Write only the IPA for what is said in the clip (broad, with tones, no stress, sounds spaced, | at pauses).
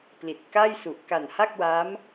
p l i˨˩ t̚ k a˥˩ j s u˨˩ ʔ k a˨˩ n h a˥˩ k̚ w a˦˥ m